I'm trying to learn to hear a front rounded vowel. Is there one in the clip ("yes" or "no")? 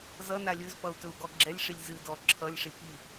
no